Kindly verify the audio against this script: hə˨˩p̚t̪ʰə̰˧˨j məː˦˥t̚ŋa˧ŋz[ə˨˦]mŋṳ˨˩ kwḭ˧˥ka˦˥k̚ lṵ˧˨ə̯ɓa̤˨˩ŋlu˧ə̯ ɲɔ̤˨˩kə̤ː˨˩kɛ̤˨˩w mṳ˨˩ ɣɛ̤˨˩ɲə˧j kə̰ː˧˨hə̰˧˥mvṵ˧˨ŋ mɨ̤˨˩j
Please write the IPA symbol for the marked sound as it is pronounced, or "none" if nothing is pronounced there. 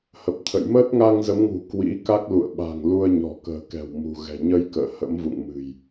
ə˨˦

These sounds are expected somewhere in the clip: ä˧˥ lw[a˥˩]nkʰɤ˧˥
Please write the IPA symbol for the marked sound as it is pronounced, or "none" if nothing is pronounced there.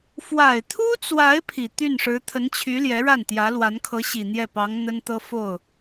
a˧˥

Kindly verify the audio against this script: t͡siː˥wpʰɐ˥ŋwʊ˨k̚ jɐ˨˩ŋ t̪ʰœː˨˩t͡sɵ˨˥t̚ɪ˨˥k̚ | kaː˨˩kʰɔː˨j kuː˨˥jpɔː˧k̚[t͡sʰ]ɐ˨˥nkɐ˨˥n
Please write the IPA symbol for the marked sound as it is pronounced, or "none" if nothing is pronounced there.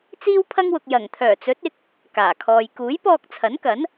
t͡sʰ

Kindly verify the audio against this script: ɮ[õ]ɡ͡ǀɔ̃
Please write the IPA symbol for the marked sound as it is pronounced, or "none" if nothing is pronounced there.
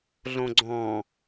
õ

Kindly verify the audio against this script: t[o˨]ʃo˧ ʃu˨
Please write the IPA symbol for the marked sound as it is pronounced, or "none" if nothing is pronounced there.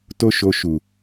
o˦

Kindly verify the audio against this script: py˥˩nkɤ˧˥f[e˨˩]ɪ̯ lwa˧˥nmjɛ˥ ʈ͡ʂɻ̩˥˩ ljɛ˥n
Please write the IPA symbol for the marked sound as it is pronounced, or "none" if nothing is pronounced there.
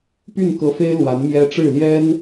e˥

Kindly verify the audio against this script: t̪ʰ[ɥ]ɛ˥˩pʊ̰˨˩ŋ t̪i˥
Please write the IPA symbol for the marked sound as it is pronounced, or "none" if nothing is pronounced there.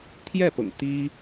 j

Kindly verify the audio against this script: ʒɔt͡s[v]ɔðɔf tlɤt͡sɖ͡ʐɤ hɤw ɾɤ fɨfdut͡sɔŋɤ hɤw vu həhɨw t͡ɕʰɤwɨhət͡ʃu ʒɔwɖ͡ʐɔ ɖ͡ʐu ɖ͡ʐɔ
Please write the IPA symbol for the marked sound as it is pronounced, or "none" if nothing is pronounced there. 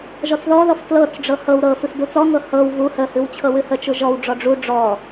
ð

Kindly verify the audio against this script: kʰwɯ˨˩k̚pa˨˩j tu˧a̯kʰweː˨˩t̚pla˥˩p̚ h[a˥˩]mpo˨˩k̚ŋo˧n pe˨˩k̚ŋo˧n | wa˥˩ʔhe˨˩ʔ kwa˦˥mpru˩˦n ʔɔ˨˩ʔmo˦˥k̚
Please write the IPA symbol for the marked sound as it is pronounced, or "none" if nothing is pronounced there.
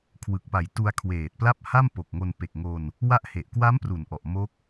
a˥˩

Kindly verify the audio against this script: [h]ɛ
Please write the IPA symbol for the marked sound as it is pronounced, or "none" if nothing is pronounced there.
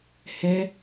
h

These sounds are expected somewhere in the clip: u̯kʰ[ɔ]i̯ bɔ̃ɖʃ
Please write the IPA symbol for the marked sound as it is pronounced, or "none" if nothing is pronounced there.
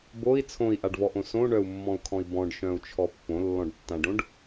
ɔ̃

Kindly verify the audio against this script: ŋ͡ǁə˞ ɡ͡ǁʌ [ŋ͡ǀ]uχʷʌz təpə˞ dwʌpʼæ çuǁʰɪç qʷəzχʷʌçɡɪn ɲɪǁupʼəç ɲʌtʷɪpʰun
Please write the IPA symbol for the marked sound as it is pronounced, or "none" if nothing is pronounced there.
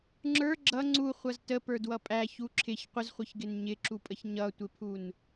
ŋ͡ǀ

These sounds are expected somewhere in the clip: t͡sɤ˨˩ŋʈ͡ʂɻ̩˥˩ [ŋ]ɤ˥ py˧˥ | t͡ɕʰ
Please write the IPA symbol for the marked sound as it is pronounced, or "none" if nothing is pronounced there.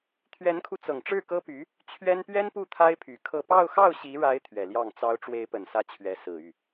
k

